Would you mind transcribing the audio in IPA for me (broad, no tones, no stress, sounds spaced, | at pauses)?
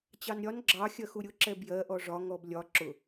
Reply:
t͡ɕ ɑ n ɾʲ ɒ n ɡ͡ǁ ɑ xʲ ɜ x u ɾʲ ʊ ǁ ɛ b j ɜ ʔ ɔ ʐ ɒ ŋ ɔ b lʲ ɒ ǁ ʊ